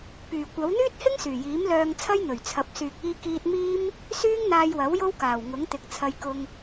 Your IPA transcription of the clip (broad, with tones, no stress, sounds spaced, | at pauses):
p yː˨˩ kʷ ɐ˨˥ w n̪ yː˥ t̚ h ɪ˥ ŋ s yː˨˩ j iː˨˥ m l œː˧ ŋ t͡sʰ ɐ˥ j n̪ ɵ˨˩ ɥ t͡sʰ ɐ˨˥ p̚ s yː˨ k̚ iː˧ k iː˧ t̚ m iː˥ m | s yː˥ ŋ n̪ aː˧ j w ɐ˨˥ w j o˥ w k aː˨˩ w ŋ ʊ˨˥ ŋ t̪ ɪ˨˥ k̚ t͡sʰ ɐ˧ j k ʊ˧ ŋ